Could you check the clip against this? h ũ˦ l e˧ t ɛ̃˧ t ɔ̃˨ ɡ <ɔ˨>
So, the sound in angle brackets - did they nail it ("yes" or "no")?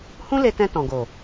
no